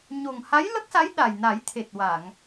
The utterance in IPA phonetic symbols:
ɲ o˨˩ ŋ h a˧˥ j l ə˦˥ k̚ s a˧˥ j ɗ a˨˩ j n a˨˩˦ j t̪ʰ e˨˩ t̚ w a˨˩˨ ŋ

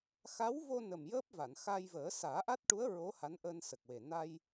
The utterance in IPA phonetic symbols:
x a˧˥ w v o˧ n ə˨˩ m j əː˦˥ p̚ v a˨˩˨ n x aː˧ j v əː˨˩˦ s aː˨˩˦ ʔ a˦˥ t̚ ʈ u˧˥ ə̯ ɹ o˧˥ h a˧˥ n ʔ əː˧ n s ə˨˩ k̚ w e˨˩ n a˧ j

